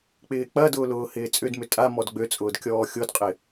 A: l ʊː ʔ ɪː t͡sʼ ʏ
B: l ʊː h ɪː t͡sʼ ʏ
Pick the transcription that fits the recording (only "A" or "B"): B